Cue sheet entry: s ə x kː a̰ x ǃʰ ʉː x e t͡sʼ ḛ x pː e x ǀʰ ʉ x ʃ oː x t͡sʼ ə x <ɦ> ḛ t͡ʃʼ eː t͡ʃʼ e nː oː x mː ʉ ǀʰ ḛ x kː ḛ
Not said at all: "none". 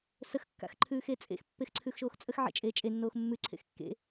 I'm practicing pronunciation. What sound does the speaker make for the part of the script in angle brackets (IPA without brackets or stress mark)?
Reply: ʕ